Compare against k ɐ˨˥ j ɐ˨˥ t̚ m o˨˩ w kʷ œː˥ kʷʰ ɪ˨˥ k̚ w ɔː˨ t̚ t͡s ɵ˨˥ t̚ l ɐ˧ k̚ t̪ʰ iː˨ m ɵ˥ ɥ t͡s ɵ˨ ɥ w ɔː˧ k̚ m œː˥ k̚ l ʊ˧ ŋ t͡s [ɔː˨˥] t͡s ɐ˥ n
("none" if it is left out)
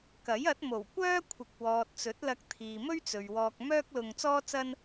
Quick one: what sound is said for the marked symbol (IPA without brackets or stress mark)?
ɔː˥